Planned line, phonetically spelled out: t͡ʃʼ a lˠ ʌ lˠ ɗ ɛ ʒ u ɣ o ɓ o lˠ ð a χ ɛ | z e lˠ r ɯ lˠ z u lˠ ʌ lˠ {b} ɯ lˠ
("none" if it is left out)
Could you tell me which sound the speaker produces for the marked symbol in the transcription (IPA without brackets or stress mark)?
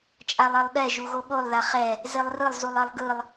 ɡ